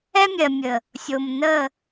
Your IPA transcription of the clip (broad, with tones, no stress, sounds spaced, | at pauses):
ɛ˦ mʲ ɜ˨ mʲ ə˨ | sʲ o˨ m n ə˦˨